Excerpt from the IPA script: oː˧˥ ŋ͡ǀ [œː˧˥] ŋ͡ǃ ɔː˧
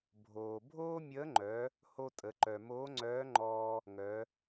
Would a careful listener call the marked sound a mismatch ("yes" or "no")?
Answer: no